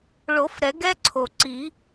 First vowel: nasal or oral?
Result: oral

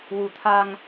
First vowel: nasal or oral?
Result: oral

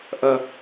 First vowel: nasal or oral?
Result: oral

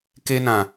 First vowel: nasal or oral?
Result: oral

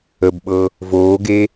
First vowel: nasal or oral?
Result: oral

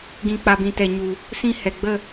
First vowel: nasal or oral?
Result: nasal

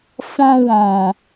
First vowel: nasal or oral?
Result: nasal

